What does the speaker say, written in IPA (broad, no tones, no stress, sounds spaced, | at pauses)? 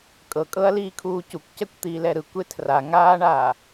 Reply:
kʼ ɤ kʼ ɤ ɐ̯ l iː kʰ uː c u kʷ c ɛ kʷ t̪ iː l ɛ ɾ ɯ kʷ e tʰ r a ŋ aː ɳ aː